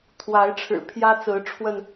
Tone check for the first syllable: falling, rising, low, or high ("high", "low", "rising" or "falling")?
rising